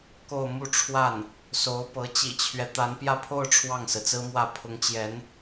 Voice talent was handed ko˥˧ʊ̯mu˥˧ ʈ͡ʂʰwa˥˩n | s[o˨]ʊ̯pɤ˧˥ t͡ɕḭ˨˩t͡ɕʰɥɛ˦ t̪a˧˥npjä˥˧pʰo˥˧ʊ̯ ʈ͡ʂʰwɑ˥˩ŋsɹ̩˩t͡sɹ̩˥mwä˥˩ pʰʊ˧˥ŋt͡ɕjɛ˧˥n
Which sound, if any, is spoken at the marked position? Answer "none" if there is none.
o˧˥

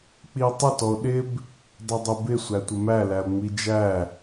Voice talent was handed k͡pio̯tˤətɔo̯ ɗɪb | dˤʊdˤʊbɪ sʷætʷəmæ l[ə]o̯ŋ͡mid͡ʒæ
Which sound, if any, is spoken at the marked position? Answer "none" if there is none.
æ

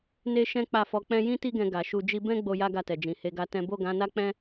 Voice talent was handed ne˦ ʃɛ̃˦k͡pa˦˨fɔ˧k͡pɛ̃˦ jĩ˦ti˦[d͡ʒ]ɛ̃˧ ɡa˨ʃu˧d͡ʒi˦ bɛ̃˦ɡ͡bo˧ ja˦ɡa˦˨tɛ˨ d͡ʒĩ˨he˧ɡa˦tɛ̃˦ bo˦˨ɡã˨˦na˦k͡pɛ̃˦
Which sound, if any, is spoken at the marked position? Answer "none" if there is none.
ɡ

